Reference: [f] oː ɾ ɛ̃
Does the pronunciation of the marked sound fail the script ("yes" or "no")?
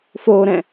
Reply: no